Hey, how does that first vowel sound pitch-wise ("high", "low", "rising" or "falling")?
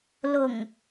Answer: low